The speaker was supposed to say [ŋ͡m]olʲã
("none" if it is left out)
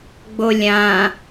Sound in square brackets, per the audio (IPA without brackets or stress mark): ɡ͡b